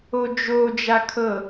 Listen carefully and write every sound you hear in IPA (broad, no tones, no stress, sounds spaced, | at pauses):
o d͡ʒ o d͡ʒ a kʰ ɤ